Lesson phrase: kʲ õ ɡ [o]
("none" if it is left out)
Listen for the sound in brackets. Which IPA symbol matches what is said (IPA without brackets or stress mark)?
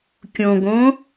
õ